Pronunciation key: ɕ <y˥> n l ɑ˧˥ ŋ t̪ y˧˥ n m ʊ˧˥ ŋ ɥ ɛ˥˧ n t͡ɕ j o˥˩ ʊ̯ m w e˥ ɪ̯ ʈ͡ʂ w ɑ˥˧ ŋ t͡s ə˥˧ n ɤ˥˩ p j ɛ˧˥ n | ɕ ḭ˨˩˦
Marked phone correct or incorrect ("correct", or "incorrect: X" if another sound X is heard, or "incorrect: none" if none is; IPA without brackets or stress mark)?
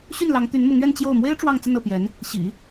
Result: incorrect: y˥˩